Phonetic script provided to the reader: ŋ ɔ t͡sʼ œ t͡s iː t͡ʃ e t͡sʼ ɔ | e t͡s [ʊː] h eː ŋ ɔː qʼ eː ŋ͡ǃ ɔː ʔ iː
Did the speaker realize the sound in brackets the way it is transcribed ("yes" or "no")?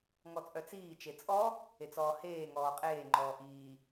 no